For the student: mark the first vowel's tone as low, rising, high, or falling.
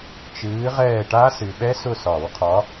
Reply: rising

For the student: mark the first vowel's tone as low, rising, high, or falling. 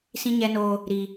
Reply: high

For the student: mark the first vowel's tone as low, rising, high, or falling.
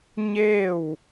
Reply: falling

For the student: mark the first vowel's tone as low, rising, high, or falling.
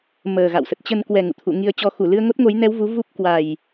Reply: low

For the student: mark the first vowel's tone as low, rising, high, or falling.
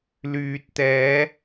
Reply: low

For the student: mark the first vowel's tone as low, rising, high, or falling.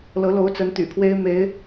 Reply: rising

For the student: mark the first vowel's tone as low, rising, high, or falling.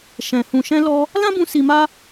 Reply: low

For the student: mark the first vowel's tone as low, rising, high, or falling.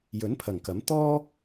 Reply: rising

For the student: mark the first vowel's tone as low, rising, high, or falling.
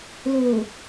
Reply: low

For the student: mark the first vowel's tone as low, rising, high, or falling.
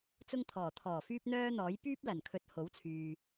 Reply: high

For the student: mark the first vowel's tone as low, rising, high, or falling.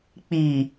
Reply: low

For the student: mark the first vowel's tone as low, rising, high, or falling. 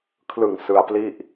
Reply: low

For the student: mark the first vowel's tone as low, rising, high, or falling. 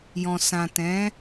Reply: low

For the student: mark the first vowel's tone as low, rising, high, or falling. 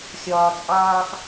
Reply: low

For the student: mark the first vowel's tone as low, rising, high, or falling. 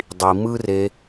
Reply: low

